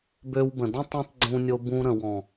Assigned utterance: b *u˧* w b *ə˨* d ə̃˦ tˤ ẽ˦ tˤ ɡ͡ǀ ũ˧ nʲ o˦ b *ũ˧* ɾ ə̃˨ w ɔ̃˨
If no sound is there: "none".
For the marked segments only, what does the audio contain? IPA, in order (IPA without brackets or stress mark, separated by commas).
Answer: ø˧, ə̃˨, ũ˦